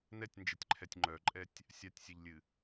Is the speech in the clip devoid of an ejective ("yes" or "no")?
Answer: no